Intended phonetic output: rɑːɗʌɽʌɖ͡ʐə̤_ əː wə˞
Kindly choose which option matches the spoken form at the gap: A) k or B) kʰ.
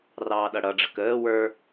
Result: A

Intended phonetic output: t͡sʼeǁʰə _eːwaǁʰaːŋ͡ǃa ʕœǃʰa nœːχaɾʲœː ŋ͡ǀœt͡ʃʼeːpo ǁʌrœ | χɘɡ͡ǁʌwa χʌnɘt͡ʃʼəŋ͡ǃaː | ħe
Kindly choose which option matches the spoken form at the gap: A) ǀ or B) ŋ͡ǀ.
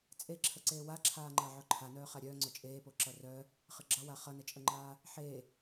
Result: A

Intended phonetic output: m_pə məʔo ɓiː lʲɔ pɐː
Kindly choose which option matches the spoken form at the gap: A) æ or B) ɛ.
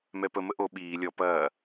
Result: B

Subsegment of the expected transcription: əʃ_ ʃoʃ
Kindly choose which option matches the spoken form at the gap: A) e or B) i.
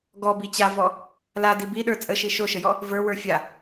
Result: B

